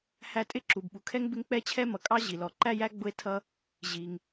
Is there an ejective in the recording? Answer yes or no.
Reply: yes